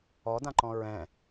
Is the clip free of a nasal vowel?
no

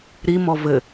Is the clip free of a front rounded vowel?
yes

